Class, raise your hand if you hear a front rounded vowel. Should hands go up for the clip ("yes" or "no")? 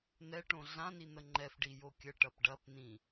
no